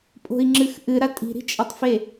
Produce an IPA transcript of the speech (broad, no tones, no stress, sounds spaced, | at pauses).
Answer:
pʼ o̤ i̯ ŋ͡ǁ ɨ x ʔ ɨ ɾ a tʼ i̤ ɾ i̤ t͡ʃʼ ɐ tˤ f e